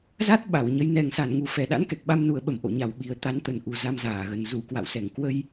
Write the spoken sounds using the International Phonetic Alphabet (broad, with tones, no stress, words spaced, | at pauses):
za˦˥t̚ ɓa˧˩wɲə˨˦j nɛ˨˩ŋsa˧˩nŋu˨˩ fɛ˨˩ɗa̰˧˥nkɛ˨˩k̚ ɓa˧mnu˨˩ə̯ɓə˧˩m ʔo̰˧˨ɲa˨˩wɓi˨˩ə̯ t̪a˨˦nt̪ə˨˩nʔu˨˩ za˧mzaː˧˩ɣə˨˩n zu˧˩kwa̰˧˨wsɛ˧˩ŋ kwə˧j